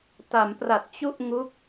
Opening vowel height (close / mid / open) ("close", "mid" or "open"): open